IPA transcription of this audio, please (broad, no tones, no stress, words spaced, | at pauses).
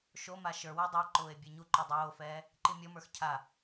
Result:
ʃoma ʃə˞wə˞ dˤɛǃʊːe̯ bʲɜɲuǃɔ dˤoːfɛː | ǃimʲɔmə˞x cʰa